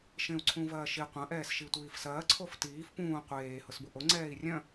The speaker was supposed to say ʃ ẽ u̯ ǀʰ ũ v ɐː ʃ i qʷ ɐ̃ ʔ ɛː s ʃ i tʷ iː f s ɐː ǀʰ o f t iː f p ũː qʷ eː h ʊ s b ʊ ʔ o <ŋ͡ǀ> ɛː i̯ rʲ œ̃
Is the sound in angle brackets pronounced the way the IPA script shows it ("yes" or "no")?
yes